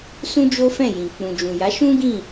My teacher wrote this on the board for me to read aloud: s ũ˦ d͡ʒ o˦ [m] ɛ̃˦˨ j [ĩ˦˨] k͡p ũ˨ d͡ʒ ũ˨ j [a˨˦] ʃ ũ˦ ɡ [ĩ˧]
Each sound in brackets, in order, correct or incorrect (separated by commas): incorrect, incorrect, correct, incorrect